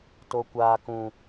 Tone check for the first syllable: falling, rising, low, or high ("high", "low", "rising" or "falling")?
low